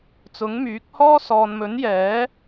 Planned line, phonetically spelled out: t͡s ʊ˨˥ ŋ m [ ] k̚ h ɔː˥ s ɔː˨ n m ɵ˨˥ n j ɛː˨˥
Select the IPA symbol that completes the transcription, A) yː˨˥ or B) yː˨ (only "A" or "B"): A